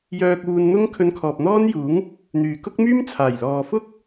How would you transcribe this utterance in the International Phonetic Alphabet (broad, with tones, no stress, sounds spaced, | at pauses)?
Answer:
j œː˧ k̚ uː˧ n n̪ ʊ˥ ŋ kʰ ɵ˧ n kʰ ɔː˨ p̚ n̪ ɔː˥ n j uː˨˥ ŋ | n̪ yː˨ k ʊ˥ k̚ m yː˥ m t͡sʰ aː˨˩ j l ɔː˨ f ʊ˥ k̚